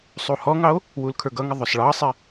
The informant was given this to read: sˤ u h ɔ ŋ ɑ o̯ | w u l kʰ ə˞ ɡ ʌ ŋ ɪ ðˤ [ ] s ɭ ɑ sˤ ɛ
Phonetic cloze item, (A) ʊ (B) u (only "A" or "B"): A